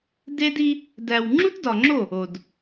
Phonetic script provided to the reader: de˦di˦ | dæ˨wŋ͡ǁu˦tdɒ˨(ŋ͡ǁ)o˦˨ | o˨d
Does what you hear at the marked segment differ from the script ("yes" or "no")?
no